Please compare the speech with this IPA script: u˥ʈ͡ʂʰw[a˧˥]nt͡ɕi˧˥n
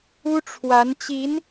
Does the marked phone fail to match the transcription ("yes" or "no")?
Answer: no